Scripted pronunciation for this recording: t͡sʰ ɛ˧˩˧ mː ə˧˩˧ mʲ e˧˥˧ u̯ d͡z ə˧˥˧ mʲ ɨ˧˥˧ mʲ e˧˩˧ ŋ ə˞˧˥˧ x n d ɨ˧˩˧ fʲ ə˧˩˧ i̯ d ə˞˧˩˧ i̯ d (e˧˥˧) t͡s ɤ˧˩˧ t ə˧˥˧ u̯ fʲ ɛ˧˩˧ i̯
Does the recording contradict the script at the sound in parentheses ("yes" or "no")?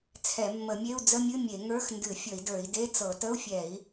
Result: no